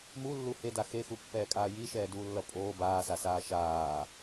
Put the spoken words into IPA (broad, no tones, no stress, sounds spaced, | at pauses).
m u lː u h e d a x e x u pː ɛː kʼ aː j i ʃ ɛː d uː lː ʌ pʼ oː b aː s a s aː ʃ aː